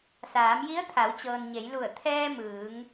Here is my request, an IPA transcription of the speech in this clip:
s aː˩˧ m j i˧˥ ə̯ t̪ʰ a˩˧ w t͡ɕ ɤː˩ n ɲ e˩˧ j l u˧˩ ə̯ t̪ʰ ɛː˧ m ɯː˩˧ ŋ

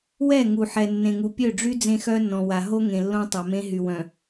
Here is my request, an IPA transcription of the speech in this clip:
w ɛ˦˨ ŋ u˨ ħ ɛ˨ nː ẽ˨ ŋ u˨ pʲ ø˦˨ ɖ͡ʐ y˦ d͡z ẽ˦ x œ˦ nː ɔ̃˨ w a˨ ɦ o˦ ŋ ẽ˨ lː õ˦ tˤ a˨ m ẽ˦ ɦ y˨ w œ̃˨

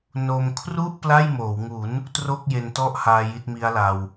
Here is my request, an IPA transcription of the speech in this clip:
n o˧ m kʰ r u˥˩ ʔ p l a˥˩ j m oː˩˦ w ŋ u˩˦ n | t r o˥˩ k̚ j e˧ n t ɔ˥˩ ʔ h aː˧ j i˦˥ t̚ m i˦˥ a̯ l a˧ w

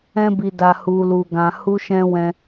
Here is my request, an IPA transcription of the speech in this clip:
ɛ̃˧ b i˨ d a˨ h u˨ l u˨ ɡ ã˨ h u˧ ʃ ɛ̃˧ w ɛ̃˧

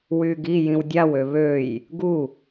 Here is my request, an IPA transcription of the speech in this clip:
w yː ɡ i j ĩ w dʲ a w ø β ø j | ɡ u

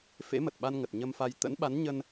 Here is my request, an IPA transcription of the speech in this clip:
f ḛ˧˥ m ə˨˩ t̚ ɓ a˧ n ŋ ə˨˩ t̚ ɲ ə˧ m f a˧ j t̪ ə̰˧˥ n ɓ a˨˦ n ɲ ə˧ n

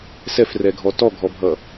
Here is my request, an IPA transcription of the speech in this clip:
s ɛ f r ɛ ɡʱ ɔ t ɔ ɡʱ ɔ bʱ ʌ

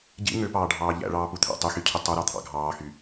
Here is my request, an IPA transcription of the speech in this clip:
ɟ ḭ ŋ ø p ɑː ɖʱ ɑː ʎ æ̰ ɭ ɑː p u t̪ʰ æ̰ tˤ y x y cʰ y tˤ o ɾ ɑ t̪ʰ ɑ̰ ɡʱ ɑː x y

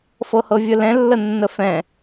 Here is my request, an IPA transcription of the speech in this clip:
f ɤ h ɤ vʲ ə l ɛ̃ lː ə nː ə f ɛ̃

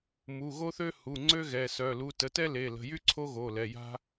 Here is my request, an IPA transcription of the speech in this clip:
m u˩˧˩ ɣ o˥ θ ø˥ h u˩˧˩ ŋ͡ǀ ø˥ ɣ ɛ˩˧˩ s œ˩˧˩ l u˩˧˩ t ə˩˧˩ t ɛ˥ l e˩˧˩ l ə̤˩˧˩ j y˥ ǀʰ o˥ ɣ o˩˧˩ l ɛ˩˧˩ j a̤˥

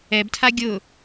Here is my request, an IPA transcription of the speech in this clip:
ɛ b tʰ a ɡʲ ʊ

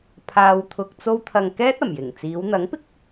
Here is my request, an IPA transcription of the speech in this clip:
pʰ aː˧ w t̪ʰ ʊ˧ k̚ t͡s o˧ w t̪ʰ ɐ˨ ŋ k ɛː˥ t̚ ɐ˨˩ m j ɪ˨˩ ŋ t͡s iː˨˧ w n̪ ɐ˨˥ ŋ p ɪ˥ k̚

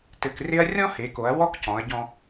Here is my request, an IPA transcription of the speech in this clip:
t ɘ˧ k r ɪ˥ ɐ̯ rʲ ɔ̃˥ h e˩˧ k o˩˧ ɐ̯ w ɔ˥ k c ɔ̃˩˧ ɐ̯ ɟ ɔ̃˧

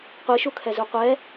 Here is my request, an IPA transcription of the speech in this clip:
qʷ i ʃ u kʰ ɛ z u qʷ ɛ

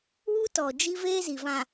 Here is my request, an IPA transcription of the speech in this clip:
w u˦ t ɔ˨ d͡ʒ i˦ v eː˦ z i˨ v ã˨

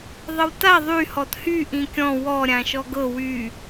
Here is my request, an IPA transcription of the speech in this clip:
ðˤ ə w t a ðˤ y h ɔ t h y ʔ ĩ kʲ ɔ̃ w ɔ ɾʲ ã ʃ ɔ ɡ ɤ w y

